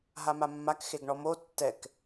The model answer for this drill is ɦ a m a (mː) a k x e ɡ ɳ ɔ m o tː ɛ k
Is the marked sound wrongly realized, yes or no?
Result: no